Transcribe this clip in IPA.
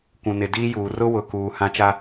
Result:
kʷ ũ˨ n ɪ˨ d iː˦ j uː˨ r ʊ˦ w ʊ˨ k uː˨ h ã˦ t͡ʃ a˦

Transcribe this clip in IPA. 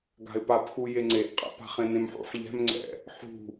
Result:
ɡ a̤ ɪ̯ p a p x u j e ŋ͡ǀ e ʔ qʼ a̰ p a̤ χ ẽ n ẽ m ħ ṵ ħ ʎ ɛ̤ m ŋ͡ǀ ɛ̰ | ħ ṳ

